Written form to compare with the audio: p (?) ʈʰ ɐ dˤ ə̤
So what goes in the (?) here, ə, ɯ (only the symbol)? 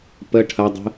ə